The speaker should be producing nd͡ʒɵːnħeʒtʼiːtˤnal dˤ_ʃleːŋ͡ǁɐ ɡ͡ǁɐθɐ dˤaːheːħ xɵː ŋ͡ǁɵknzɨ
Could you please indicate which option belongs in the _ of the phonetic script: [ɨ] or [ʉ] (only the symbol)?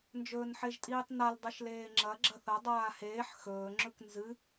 ɨ